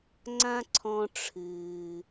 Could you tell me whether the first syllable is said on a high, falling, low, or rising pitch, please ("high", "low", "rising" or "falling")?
high